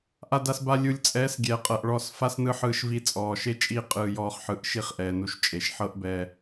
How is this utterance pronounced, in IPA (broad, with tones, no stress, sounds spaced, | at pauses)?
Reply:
ʔ a˧ d a˧ s b a˧ lʲ u˨ lʲ t͡sʼ ɛː˨˦ s ɡʲ ɛː˨ qʼ ɤ˨ ʔ ɭ ɔ˦˨ s f a˦ s n ɯ˦ ħ ɯː˧ ʃ v i˧ t͡sʼ ɔː˨ ʃ e˦ t͡ʃʼ iː˦ qʼ ɯː˧ j ɔː˧ χ ħ ɯ˨˦ ʔ ʃ i˦˨ χ ʔ ɛː˨ n u˧ ʃ t͡ʃʼ e˨ ʃ ħ ɤ˦ ʔ b ɛ˧